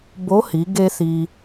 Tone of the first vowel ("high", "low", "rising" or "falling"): rising